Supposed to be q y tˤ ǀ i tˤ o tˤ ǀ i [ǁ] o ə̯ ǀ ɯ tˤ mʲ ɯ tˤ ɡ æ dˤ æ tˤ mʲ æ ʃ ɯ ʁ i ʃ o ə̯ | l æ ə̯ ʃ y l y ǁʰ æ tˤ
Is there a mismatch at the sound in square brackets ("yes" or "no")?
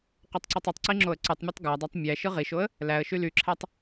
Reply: yes